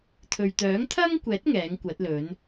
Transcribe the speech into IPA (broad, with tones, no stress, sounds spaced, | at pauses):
t̪ʰ ɵ˨ ɥ t̪ œː˨˥ ŋ t̪ʰ ɐ˥ ŋ kʷ ɛː˨˥ t̚ ŋ ɛː˨˥ ŋ kʷ ɐ˨˥ t̚ l ɵ˨˥ n